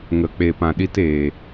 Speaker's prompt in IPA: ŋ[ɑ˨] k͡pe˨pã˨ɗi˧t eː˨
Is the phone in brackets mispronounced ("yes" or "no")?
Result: yes